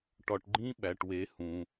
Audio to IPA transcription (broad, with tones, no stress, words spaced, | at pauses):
ʈɒ˩ʈɡ͡ǃĩ˧˥ ɓæ˩ʈwe˩˧ hũ˩